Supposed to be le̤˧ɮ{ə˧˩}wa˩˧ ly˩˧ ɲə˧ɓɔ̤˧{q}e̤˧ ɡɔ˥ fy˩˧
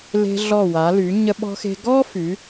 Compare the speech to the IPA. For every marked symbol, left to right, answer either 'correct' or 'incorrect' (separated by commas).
incorrect, incorrect